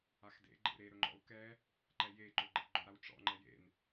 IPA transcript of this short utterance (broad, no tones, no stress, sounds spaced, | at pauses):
a x d ḛ ɡ͡ǃ ḛ ɾ e ɾ ɵ ŋ͡ǃ ɔ̰ u̯ k ɛ | ǃ ɛ j e ǃ ɵ ɡ͡ǃ ḛ ɡ͡ǃ ɵ ɾ a w ʈ͡ʂ ɔ̰ ŋ͡ǃ ɛ j ḛ n